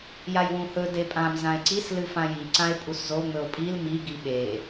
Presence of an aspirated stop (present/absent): absent